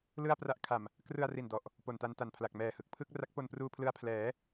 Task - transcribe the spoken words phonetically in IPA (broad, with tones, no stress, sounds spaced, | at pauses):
l ɯ˥˩ a̯ p r a˦˥ ʔ kʰ a˨˩ m | k r ɯ˧ a̯ r i˨˩ n d ɔ˨˩ ʔ | p o˨˩ n t a˧ n t a˨˩ n pʰ l a˨˩ k̚ m ɛː˨˩ h ɯ˨˩ k̚ pʰ ɯ˥˩ k̚ r a˦˥ k̚ p o˧ n p r uː˧ pʰ l ɯ˧ a̯ pʰ l ɛː˩˦